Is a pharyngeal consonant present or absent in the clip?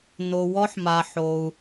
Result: present